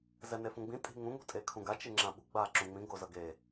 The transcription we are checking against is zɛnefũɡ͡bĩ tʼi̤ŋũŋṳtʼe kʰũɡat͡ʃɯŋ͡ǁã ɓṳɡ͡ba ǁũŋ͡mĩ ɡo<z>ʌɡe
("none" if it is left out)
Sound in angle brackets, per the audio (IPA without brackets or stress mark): z